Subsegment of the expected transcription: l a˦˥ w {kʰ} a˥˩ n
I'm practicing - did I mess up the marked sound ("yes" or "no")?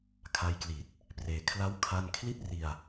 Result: no